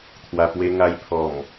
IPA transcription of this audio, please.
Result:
t̪ʰ w a˨˩ p w e˧ ŋ a˧ j pʰ ɔ˨˩ m

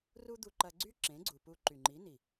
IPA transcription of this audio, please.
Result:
r u˦ d̪ u˧ ǃ ɐ˧ ɡ͡ǀ y˦ ǁ ẽ˨˦ ɡ͡ǀ u˨ p u˧ ǃ y˨ ŋ͡ǃ i˨˦ n i˨

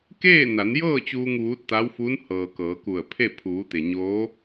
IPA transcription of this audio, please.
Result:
k eː˥˨ n a˩˧ n j ɤː˥˨ t͡ɕ uː˧ ŋ ʋ uː˧˥ t̚ t̪ a˧˥ w f u˧˥ n h ɤː˩ k ɤː˩˧ k u˧˩ ə̯ pʰ e˥˨ pʰ uː˩˧ t̪ e˩ ɲ oː˧˥

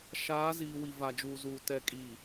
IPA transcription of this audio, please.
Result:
ʃ aː˨˦ z iː˨ w i˨ v a˨ d͡ʒ uː˨ z uː˨ t ɛ˨ kʼ i˨

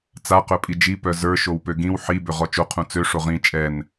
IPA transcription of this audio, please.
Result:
t͡s a q œ pʼ i d͡ʒ i p œ z ə˞ ʃ o w p ø ɡ ĩ w ħ i b ø ʁ ɔ t͡ʃ o qʰ ũ t͡s ø ʂ o ʁ ĩ t͡ʃʼ ɛ n

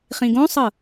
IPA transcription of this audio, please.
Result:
χ ĩ ɡ õ sˤ ɤ

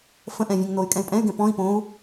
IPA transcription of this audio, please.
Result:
f ə̃ ʔ ɛ̃ vʲ ɛ̃ ŋ n o y̯ kʼ ɛ̃ y̯ pʼ ɛ̃ y̯ ɡ ɛ̃ p ɔ̃ i̯ p õ u̯

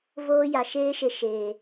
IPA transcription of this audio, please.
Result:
v oː˦ j a˨ ʃ eː˦ ʃ e˧ ʃ eː˨

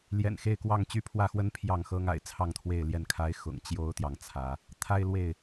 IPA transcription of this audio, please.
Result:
l j ɛ̰˨˩ n x e˥˨ ɪ̯ k w ɑ˥˨ ŋ t͡ɕ y˦ pʰ w ä˥˨ x w ə˦ n pʰ j ɑ˥˨ ŋ x ɤ˦ ŋ a̰˨˩ ɪ̯ t͡sʰ ɑ˥˨ ŋ t̪ʰ w e˥˨ ɪ̯ l j ɛ˥˨ n kʰ a˨˦ ɪ̯ x ʊ̰˨˩ ŋ t͡ɕ j o˦ ʊ̯ t̪ j ɑ˨ ŋ t͡sʰ ä˨˦ | t̪ʰ a˦ ɪ̯ l w e˥˨ ɪ̯

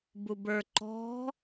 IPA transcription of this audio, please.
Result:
b u b ə˞ ǃ ɔ̤

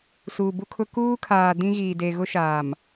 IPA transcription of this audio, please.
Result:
s uː˨ b u˦ kʰ ʊ˦ k uː˦ kʰ aː˨ d ĩ˦ ɣ iː˨ d e˨ ɣ ʊ˦ ʃ aː˨ m

